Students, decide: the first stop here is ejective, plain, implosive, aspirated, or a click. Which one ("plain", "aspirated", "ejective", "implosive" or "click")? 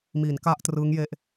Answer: plain